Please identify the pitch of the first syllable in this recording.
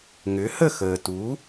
rising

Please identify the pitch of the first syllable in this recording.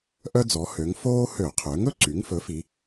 high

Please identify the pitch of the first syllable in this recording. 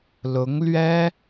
rising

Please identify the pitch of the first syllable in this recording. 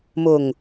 low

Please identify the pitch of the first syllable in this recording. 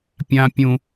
high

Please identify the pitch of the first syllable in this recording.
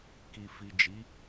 low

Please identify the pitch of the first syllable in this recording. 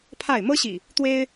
falling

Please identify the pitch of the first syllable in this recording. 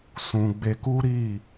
low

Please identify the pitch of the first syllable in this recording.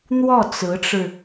falling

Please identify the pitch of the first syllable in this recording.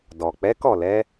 low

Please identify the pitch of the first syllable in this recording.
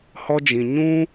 high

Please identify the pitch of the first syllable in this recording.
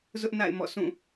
high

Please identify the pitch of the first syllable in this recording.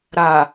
low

